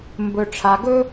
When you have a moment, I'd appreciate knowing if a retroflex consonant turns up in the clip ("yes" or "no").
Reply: yes